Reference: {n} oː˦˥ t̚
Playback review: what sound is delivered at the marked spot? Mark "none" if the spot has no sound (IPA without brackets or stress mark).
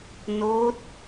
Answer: n